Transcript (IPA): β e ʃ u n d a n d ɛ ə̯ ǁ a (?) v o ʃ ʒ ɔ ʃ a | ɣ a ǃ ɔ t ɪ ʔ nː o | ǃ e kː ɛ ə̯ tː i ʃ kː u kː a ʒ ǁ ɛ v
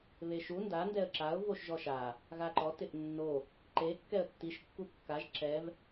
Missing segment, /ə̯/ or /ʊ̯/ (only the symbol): ʊ̯